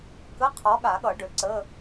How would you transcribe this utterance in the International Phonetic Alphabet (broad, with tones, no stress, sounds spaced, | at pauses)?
k ə˧˥˧ qʰ ɔ˨˥ ɠ a˨˩˦ ɠ ʌ˨˩˦ ɖ ø˨ ǀ ə˧˥˧